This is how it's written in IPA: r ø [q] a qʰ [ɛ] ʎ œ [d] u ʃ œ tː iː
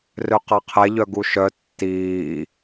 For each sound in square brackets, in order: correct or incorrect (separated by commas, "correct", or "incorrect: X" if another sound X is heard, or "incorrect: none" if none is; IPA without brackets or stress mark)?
correct, correct, incorrect: ɡ